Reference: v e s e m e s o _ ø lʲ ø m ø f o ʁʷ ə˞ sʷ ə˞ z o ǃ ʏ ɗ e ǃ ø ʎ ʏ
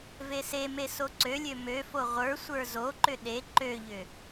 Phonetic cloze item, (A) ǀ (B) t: A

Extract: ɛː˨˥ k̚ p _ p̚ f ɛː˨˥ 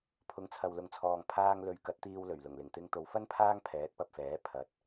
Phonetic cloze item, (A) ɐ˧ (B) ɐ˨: A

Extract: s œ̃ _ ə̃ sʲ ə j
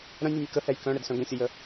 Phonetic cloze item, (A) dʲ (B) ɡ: B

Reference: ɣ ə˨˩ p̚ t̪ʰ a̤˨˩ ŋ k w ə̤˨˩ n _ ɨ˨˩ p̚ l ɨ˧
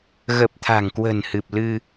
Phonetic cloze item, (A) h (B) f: A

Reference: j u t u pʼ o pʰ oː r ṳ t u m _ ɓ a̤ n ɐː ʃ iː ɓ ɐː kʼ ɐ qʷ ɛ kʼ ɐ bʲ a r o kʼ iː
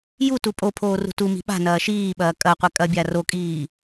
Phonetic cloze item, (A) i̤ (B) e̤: A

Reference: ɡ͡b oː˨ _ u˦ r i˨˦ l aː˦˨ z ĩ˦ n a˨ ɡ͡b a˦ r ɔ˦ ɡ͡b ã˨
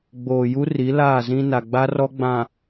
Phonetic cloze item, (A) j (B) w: A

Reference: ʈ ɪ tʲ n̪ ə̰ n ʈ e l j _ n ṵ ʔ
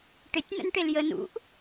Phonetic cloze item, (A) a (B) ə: B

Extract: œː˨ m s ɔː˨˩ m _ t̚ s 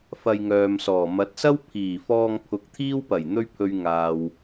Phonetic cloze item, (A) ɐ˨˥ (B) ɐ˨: A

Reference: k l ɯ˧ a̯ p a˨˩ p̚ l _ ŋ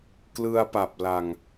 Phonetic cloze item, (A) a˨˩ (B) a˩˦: A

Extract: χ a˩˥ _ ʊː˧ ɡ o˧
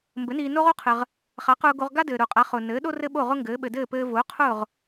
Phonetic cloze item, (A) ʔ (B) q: B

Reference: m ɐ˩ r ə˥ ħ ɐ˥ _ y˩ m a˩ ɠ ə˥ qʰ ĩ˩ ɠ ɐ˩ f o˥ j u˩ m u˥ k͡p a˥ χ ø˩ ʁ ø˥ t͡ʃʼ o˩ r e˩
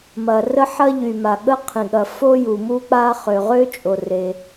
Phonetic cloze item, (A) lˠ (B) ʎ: B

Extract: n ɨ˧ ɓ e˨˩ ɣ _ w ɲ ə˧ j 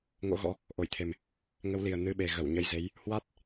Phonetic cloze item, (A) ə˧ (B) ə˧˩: B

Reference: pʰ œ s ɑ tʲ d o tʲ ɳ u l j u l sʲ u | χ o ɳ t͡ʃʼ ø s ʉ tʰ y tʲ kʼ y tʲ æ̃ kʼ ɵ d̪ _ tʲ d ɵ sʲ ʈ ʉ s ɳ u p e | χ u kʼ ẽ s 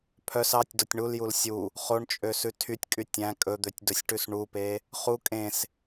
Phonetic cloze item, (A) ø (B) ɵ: A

